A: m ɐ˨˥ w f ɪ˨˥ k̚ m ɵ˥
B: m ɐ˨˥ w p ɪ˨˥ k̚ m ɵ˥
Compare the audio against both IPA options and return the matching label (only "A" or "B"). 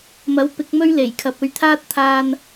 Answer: B